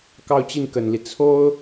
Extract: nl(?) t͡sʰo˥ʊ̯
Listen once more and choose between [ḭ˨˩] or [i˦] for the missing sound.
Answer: i˦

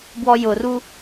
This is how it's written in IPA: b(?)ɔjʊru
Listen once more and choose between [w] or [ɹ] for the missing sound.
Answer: w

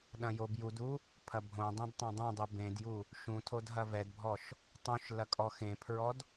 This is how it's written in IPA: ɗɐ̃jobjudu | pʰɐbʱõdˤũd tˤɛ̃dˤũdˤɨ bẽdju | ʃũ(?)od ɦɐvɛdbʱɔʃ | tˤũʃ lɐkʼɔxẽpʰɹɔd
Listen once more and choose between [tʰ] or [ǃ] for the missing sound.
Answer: tʰ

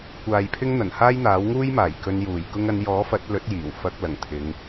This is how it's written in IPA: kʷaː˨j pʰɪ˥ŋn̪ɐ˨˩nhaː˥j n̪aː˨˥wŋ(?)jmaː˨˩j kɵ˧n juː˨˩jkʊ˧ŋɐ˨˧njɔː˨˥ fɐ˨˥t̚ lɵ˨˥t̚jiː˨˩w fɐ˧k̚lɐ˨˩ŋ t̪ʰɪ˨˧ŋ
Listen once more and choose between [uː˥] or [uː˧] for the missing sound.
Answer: uː˥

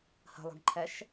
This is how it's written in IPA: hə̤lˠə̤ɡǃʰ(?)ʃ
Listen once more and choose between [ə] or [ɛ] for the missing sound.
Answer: ɛ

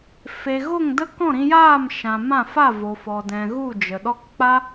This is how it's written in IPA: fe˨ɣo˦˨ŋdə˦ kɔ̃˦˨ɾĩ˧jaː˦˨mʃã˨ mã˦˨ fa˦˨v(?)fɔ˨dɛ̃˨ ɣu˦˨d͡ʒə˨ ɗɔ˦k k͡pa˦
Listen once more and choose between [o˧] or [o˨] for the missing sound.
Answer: o˨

